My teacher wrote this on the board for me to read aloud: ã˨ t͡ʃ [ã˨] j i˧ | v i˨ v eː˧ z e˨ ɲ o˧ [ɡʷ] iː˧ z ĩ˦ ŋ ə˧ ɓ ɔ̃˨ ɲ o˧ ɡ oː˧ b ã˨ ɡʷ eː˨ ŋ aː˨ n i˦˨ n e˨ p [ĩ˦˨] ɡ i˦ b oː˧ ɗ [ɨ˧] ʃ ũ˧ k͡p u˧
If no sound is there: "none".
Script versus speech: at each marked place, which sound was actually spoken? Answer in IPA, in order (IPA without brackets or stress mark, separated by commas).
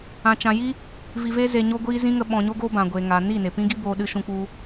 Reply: ã˨, ɡʷ, ĩ˦, ɨ˧